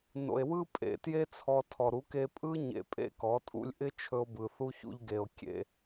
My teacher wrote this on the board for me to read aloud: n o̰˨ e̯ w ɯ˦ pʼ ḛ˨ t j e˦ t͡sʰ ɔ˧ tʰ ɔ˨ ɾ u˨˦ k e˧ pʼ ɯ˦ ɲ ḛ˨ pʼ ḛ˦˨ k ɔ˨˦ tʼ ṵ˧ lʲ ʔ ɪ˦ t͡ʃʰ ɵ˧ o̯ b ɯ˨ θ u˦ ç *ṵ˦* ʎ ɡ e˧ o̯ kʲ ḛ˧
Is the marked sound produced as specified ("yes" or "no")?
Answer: yes